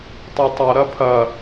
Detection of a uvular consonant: absent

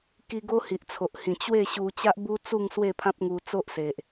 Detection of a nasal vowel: present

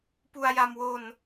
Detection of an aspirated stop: absent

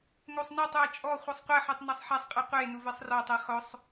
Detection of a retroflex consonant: absent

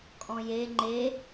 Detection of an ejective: present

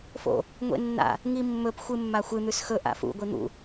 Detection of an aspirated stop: absent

